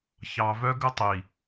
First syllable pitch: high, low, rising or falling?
low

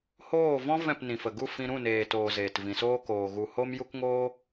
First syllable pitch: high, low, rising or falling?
falling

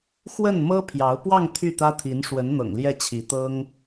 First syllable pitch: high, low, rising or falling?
falling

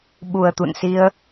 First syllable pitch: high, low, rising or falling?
low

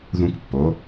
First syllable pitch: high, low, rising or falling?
high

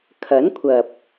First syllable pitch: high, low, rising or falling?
rising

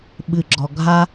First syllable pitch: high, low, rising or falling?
low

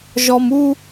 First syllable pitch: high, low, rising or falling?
high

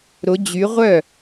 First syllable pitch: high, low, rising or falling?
rising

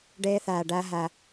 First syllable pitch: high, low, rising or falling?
high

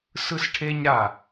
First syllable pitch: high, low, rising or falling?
falling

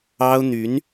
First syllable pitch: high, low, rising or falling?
high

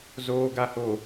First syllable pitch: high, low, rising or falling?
low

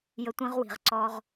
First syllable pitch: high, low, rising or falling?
high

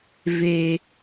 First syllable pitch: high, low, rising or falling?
low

